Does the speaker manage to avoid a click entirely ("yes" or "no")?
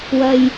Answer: yes